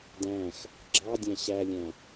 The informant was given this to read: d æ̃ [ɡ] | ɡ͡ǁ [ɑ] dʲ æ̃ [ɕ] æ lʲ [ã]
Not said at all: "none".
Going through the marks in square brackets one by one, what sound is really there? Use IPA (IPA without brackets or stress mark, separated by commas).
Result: x, ɑ, ɕ, æ̃